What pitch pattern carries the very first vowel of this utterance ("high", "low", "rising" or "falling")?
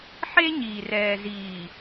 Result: high